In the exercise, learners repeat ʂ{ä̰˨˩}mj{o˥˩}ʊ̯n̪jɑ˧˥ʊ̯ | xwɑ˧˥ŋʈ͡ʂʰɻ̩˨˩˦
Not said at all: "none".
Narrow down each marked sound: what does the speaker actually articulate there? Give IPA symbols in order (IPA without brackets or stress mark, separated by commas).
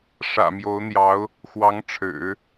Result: ä̰˨˩, o˧˥